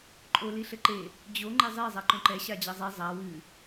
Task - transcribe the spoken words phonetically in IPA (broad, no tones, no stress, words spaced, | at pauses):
ǃʼo liɬɘǃe | d͡ʑo ŋ͡ǃezˤe zˤaǃõǃɛ ɕad͡ʑɐzˤɛ zˤa wɨ